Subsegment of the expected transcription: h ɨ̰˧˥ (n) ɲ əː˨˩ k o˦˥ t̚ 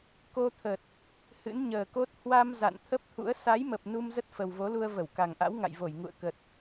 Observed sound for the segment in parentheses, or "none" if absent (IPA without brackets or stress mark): n